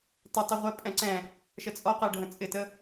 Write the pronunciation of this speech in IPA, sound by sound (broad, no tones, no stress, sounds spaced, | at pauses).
t ɪ tˤ ə ʁʷ ɛ pʼ ɛ̃ ǀ ɛ̃ | ʃ ə t͡sʼ ɔ q ɜ ɖʱ ə̃ t͡sʼ ɪ t ə